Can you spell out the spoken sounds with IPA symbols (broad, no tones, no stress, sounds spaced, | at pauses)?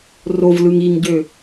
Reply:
r o v l ɯ ŋ i ŋ ɟ ø